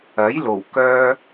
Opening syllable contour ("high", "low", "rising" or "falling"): rising